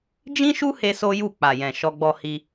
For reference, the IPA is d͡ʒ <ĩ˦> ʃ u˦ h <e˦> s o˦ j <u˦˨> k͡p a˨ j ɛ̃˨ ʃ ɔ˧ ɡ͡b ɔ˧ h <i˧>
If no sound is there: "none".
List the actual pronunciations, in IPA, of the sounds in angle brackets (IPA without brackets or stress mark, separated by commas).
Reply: ĩ˦, e˦, u˦˨, i˧